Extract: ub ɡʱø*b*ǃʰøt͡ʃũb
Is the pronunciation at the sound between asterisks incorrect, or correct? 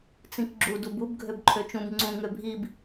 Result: correct